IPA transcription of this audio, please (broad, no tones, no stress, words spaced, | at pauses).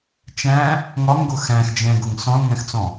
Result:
t͡ʃæ̃ | ŋɒŋɡʊ xæ̃xd͡ʒɛ̃ɡʊŋ sɔ̃lŋæ̃xt͡sɔ̃